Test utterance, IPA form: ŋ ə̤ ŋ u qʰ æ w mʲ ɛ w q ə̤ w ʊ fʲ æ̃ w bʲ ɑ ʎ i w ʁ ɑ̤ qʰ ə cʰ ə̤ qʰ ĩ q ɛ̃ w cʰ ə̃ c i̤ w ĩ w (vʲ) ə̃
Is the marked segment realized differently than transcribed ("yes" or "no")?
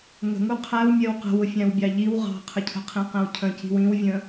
no